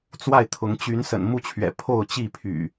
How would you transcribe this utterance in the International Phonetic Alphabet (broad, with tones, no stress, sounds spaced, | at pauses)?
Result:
t͡s w a˥˨ ɪ̯ t̪ʰ ʊ˨˦ ŋ t͡ɕ y˨˦ n s ə̰˨˩ n m u˥˨ t͡ɕʰ ɥ ɛ̰˨˩ pʰ o˥˨ ʊ̯ t͡ɕ i˥˨ pʰ y̰˨˩